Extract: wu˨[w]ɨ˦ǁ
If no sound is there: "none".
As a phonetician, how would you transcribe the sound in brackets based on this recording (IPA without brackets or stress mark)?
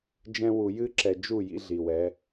j